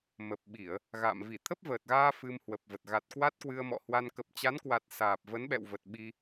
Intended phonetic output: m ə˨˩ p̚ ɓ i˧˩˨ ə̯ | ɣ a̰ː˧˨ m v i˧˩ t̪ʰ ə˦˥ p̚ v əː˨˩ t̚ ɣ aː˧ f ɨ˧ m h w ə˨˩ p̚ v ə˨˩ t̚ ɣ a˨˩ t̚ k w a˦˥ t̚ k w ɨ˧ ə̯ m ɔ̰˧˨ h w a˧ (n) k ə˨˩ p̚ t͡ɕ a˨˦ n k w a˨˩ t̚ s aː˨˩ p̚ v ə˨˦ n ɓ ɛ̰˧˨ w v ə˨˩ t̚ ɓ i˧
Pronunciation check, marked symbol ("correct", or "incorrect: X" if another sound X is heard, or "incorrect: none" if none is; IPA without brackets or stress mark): correct